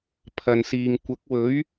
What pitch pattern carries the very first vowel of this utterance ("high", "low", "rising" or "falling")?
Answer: low